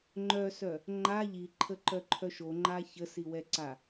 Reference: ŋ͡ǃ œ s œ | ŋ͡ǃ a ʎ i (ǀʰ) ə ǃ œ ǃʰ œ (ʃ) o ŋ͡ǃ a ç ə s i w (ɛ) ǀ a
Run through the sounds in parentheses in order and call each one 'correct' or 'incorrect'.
incorrect: ǃʰ, correct, correct

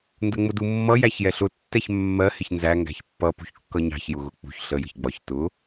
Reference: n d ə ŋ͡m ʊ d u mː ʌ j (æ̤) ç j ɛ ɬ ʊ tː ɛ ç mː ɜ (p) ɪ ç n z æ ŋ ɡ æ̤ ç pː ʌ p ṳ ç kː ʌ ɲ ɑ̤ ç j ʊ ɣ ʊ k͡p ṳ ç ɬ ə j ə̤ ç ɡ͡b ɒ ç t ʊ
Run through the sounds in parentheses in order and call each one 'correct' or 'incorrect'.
incorrect: æ, incorrect: h

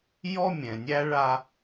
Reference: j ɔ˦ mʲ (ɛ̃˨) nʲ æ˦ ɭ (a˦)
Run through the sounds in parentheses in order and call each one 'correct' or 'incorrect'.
correct, correct

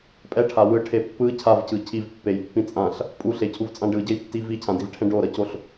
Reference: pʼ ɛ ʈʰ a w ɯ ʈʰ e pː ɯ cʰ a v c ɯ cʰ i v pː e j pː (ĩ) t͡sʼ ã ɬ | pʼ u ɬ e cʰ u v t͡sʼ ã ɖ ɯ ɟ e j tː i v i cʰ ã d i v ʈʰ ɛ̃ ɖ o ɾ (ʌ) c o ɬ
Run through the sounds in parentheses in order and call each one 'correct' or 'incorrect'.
correct, correct

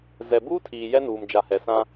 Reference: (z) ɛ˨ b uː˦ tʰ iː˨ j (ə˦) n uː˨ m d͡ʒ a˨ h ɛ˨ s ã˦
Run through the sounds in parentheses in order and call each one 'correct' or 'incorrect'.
correct, incorrect: ɛ˦

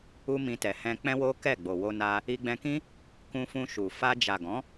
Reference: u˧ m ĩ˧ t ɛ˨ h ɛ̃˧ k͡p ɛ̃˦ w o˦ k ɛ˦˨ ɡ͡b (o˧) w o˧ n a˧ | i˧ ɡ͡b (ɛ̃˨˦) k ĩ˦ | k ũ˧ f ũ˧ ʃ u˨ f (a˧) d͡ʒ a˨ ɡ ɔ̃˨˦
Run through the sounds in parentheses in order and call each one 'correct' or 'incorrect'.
incorrect: o˨, incorrect: ɛ̃˧, correct

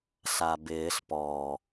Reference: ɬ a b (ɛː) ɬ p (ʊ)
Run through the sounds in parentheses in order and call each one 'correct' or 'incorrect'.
incorrect: ɪː, incorrect: ɔ

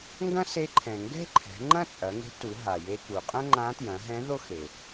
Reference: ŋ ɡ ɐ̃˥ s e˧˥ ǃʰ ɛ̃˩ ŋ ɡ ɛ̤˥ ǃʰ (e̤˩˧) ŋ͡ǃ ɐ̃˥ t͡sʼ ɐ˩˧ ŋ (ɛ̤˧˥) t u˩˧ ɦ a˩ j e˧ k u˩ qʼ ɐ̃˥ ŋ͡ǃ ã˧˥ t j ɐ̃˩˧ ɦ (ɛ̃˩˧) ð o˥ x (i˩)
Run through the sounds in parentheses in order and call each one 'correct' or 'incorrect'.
incorrect: ɛ̤˩˧, incorrect: e̤˧˥, incorrect: ɛ̃˧˥, incorrect: e˩

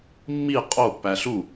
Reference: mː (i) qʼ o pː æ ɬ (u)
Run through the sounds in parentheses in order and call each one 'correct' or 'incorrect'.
correct, correct

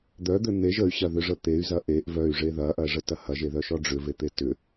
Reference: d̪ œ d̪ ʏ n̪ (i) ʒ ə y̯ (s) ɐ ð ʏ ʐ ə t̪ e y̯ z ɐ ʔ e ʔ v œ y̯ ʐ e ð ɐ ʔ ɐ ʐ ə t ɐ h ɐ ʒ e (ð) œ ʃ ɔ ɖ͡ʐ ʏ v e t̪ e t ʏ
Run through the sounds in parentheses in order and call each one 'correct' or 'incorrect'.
incorrect: e, incorrect: ɕ, correct

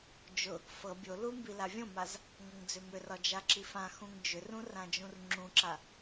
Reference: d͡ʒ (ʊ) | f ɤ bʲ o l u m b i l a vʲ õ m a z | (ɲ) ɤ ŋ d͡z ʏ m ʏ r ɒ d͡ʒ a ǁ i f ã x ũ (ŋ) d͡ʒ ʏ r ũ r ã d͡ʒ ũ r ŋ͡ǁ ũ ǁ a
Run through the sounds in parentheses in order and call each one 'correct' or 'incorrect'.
correct, incorrect: ŋ, correct

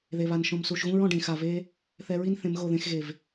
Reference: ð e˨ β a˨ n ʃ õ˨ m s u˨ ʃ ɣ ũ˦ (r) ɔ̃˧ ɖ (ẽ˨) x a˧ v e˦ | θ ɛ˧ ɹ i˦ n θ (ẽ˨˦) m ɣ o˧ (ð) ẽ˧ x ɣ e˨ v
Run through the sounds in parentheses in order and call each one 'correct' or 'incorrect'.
incorrect: ɹ, incorrect: ẽ˧, correct, correct

